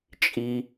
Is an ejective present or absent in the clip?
present